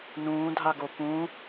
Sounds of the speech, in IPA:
n ũː dʱ a ɡ o p ũ

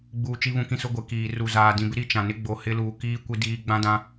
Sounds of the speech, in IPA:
ɡ͡b uː˨ t͡ʃ i˦ β ũ˦ k ĩ˦ s ʊ˦ ɡʷ e˨ k iː˨ r u˨ z aː˨ d ĩ˨ b ɪ˦ ɾ i˦ t͡ʃ ã˨ n ɪ˦ ɡ͡b o˨ h ɪ˦ l uː˨ k iː˦ kʷ i˦ d iː˦ ɡ͡b ã˦ d ã˦

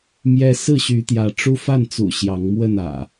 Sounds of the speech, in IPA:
m j ɛ˦ s ɹ̩˥˨ ɕ y˨˦ t̪ j ä˨˦ ʈ͡ʂ u˦ f a˥˨ n t͡s ṵ˨˩ ɕ j ɑ˨˦ ŋ m w ə˥˨ n ä̰˨˩

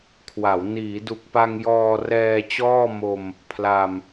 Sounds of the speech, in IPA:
kʰ w a˩˦ w n iː˩˦ d u˨˩ k̚ p a˧ ŋ j ɔː˧ r ɛː˧ t͡ɕ ɔː˥˩ m o˧ m | pʰ l a˧ m

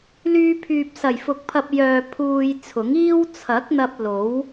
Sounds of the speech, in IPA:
l yː˧ pʰ yː˨ p̚ s ɐ˨˩ j f ʊ˨ k̚ pʰ ɐ˧ p̚ j œː˧ pʰ uː˧ j t͡sʰ ʊ˨˥ ŋ iː˥ w t͡sʰ ɐ˨˥ k̚ n̪ ɐ˧ p̚ l o˨˥ w

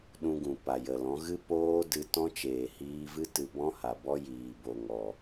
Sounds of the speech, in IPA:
ɗ ũ˧ ɡ ũ˨ p a˨ j ə˨ l ɔ̃˨˦ ɣ ɨ˦ p oː˦ d ɨ˧ t ɔ̃˦ t͡ʃ eː˨ h iː˧ v ɨ˦ t ɨ˧ b ɔ̃˦ h a˨ b ɔ˦ j iː˨ b o˨ ŋ ɔ˨

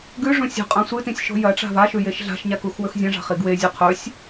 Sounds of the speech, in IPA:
ɡ ʉ ʐ ũ sʲ o̤ qʼ ɐ̃ sʷ ɨ t ĩ sʲ ʃ o̤ j ɐ ʈ͡ʂ a̤ v a ʃ ʉ j e ʃ ɮ a̤ ʃ ɲ a k u x w ɵ x zʲ ɐ̃ ʐ a̤ χ i ɡ w e zʲ u qʰ ɵ sʲ

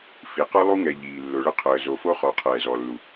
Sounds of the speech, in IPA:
f i˨˦ q ɔ˦ lˠ u˦ ŋ ɛ˨ ʎ iː˨ lː ʊ˨ ɭ ə˦ qʰ əː˨ z o˨ f o˦ χ ɔ˨˦ qʰ ɛː˨ z ɔ˨ lː u˨

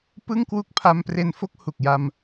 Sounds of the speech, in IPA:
p ɯ˥˩ ŋ k w u˥˩ k̚ pʰ a˧ m p r e˧ n f o˦˥ k̚ h u˨˩ k̚ j a˧ m

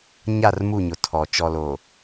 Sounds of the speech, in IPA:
ɲ a˦˨ r m u˦˨ ɲ ʊ˨ tʰ ɔ˨ t͡ʃ ɔ˨ l o˨

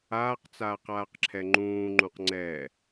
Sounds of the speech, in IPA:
aː q t͡s aː q aː q ǁʰ ɛ ŋ͡ǃ ũː ŋ͡ǃ ũ q ŋ͡ǀ ɛ

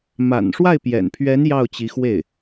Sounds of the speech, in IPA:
m a̰˨˩ n ʂ w a˥˩ ɪ̯ p j ɛ̰˨˩ n pʰ ɥ ɛ˧˥ n j ɑ˥˩ ʊ̯ t͡ɕ i˧˥ x w e˥˩ ɪ̯

